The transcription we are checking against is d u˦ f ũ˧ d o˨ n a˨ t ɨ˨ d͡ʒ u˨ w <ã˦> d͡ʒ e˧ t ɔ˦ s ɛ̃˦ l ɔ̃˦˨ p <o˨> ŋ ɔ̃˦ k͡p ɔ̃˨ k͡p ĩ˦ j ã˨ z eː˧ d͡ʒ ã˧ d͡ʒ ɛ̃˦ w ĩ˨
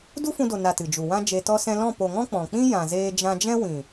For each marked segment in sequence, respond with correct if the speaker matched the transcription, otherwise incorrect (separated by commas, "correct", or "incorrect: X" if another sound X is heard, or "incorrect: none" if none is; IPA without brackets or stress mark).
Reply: correct, correct